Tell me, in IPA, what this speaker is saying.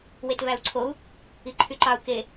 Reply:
wetvæu̯ǀʰou̯ | iǃʰyǃɑu̯ ke

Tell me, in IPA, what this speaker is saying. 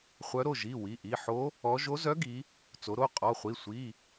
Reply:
χʷœ˧˥ɾo˩˧˩ ʒi˩˧˩ wi˩˧˩ʔi˩˧˩ ħo˧˥ | ɔ˧˥ ʒo˧˥zœ˧˥ɡi˩˧ | t͡so˩˧ɾo˩˧˩ qʼɔ˩˧˩χʷi˩˧˩ sʷi˩˧˩

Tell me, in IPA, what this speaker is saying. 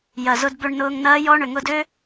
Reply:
jɐ˨zʊ˧d bø˧ɳnʊː˧ŋnɐː˦jɔ˦ ɳʏ˨ŋʊ˧dø˦

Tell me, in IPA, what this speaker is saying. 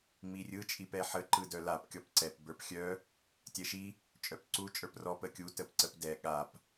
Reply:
ŋ͡mirʲɯ t͡ʃʼipɛħə ǃɯdœlap kʲɔpǀɛp bə˞pxʲœ | tʲɛʃi | t͡ʃʼœpǀu t͡ʃʼə˞prɔ pəkʲu təpǀəpdɛ ɠap

